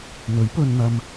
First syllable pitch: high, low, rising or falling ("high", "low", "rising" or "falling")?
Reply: rising